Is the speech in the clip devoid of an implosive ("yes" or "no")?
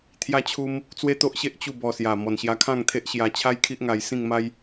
yes